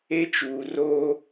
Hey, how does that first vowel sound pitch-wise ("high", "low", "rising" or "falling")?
high